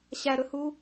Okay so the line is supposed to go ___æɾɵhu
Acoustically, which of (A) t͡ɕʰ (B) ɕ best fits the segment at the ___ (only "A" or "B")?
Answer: B